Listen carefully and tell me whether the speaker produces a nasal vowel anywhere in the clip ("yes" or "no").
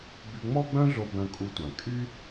yes